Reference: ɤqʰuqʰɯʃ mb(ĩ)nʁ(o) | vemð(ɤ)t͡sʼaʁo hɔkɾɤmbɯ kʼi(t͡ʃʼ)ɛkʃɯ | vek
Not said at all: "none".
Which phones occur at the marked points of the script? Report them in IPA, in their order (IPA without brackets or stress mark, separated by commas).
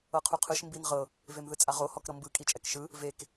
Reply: i, ɤ, ɯ, t͡ʃʼ